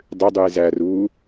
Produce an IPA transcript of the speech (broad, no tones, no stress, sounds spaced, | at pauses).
dˤ ʏ dˤ u e̯ z æ r uː